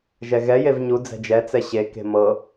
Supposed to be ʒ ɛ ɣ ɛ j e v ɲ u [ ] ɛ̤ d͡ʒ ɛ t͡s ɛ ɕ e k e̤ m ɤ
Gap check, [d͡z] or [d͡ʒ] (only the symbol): d͡z